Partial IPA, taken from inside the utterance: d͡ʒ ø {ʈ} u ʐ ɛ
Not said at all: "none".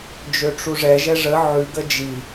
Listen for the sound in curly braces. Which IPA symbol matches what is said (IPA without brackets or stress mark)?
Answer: ʈ͡ʂ